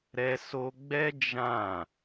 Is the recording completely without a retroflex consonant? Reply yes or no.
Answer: yes